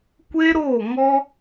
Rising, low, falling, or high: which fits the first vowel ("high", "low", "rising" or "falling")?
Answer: high